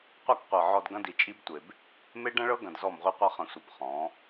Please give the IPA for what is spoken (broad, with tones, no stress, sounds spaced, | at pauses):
qʷ ɐ˦ k qʷ ɤ˨ ʕ ɔ˨ d ɡ ɐ̃˦ d i˨ t͡ʃʼ i˦ b tʷ e˨ b | m e˦ ɖ ɐ̃˦ ɭ ɤ˦ ɡ ɐ̃˨ d z ɔ˦˨ m ʁʷ i˦ qʷ ɐ˦ χ ɐ̃˨ sʷ ɐ˨ b χ ɔ̃˨˦